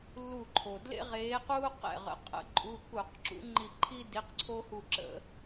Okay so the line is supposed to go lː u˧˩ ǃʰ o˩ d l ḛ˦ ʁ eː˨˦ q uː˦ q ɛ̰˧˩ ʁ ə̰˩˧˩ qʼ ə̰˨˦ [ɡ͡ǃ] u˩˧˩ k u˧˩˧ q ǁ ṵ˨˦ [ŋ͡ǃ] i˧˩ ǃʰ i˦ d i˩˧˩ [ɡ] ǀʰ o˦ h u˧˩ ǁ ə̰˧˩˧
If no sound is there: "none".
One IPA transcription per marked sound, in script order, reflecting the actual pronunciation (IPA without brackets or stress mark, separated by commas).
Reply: ǃʼ, ŋ͡ǃ, q